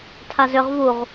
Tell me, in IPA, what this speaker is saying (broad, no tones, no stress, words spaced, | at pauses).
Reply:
tʰazʏʁ vuʁ